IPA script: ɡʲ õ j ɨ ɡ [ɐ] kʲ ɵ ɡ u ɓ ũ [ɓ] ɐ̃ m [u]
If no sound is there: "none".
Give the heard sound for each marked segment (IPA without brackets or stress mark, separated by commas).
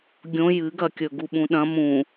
ɐ, ɗ, ũ